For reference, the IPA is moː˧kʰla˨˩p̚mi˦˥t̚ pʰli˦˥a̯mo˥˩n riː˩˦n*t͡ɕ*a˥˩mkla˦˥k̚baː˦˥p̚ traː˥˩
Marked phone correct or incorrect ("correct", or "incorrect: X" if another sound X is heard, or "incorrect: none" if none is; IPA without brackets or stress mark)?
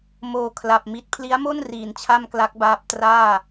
incorrect: t͡ɕʰ